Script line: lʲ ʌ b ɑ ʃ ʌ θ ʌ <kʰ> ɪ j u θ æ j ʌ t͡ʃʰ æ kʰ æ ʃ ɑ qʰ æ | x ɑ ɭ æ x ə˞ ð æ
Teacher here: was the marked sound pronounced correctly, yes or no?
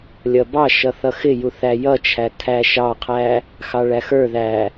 no